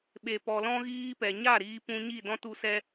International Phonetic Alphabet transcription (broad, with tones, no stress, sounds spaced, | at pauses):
ɓ e˧ p ɔ˧ l ɔ̃˦ ɣ iː˦ p ɛ˨ ɲ a˦˨ ɾ iː˧ p ũ˧ ɲ i˦˨ d ɔ̃˦ t u˧ s ɛ˧